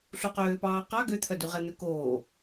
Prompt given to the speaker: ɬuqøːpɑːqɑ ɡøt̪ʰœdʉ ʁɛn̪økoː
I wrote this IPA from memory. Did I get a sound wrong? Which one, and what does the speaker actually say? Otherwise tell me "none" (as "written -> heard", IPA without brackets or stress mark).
none